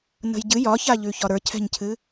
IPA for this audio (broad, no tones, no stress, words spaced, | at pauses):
nə̤jɟɨ jɒçaʎʉçɒ ɾə˞cʰɛ̤ɲcʰɨ